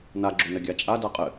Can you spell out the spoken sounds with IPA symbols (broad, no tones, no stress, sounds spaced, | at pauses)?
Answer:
n a ɡ͡ǁ o n ɘ ɡʲ a t͡ʃʼ a d a qʼ ɘ